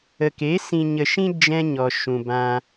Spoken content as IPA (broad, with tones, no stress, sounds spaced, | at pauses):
ə˨ k e˨˦ s ĩ˨ ɲ ə˨ ʃ ĩ˧ d͡ʒ ɛ̃˦ ɲ ɔ˨ ʃ ũ˨ b ã˧